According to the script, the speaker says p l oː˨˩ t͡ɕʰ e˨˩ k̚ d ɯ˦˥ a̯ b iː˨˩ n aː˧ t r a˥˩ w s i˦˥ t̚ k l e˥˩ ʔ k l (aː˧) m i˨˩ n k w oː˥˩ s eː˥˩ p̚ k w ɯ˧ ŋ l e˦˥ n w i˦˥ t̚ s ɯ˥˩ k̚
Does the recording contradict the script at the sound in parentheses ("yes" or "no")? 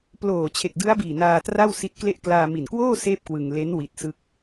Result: no